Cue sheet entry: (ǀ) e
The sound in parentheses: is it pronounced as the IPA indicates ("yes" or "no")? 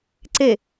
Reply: yes